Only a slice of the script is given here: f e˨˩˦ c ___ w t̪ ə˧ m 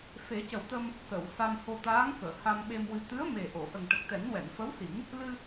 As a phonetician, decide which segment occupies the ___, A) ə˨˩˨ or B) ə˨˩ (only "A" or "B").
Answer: B